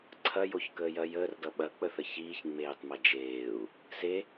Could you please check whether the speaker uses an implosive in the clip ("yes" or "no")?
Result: yes